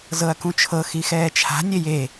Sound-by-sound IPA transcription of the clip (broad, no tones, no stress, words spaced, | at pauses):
zɤɐ̯kũt͡ʃʰɤ xixɛːt͡ʃʰa̤ nʲeje